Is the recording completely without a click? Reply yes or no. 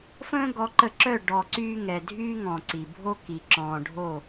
no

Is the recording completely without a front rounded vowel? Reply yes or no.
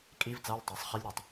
yes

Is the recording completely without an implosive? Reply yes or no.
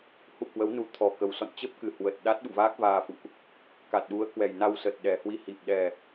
no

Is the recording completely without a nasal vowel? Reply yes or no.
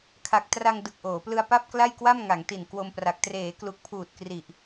yes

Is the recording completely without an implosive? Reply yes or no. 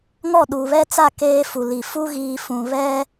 no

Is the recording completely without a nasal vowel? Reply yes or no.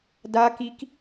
yes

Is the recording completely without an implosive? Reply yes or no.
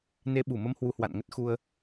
no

